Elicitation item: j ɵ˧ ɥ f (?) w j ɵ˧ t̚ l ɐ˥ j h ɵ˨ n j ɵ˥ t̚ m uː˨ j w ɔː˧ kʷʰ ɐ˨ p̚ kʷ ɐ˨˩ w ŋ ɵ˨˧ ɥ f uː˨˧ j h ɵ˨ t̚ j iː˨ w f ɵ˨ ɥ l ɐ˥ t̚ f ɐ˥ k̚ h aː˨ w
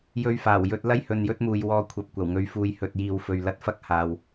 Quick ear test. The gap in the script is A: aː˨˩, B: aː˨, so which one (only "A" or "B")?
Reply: A